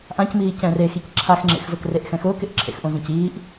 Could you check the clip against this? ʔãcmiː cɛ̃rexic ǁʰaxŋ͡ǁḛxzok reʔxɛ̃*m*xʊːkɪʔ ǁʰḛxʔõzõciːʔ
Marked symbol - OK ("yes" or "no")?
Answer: no